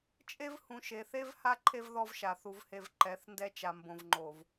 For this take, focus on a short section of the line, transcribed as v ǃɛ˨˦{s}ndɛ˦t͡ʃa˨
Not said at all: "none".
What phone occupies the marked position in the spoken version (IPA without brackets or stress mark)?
θ